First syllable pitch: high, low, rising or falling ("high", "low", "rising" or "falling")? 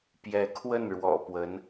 rising